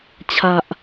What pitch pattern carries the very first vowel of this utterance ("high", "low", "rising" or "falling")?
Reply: low